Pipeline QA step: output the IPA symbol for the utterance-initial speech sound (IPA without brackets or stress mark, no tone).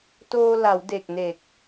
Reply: t